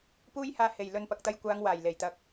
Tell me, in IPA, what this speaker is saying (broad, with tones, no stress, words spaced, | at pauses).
puː˥jhaː˧ he˨˩jlɵ˨n pɐ˨k̚t̪ɐ˧jkʷaː˨˧ŋ waː˨˩jle˨˩jt̪ɐ˨k̚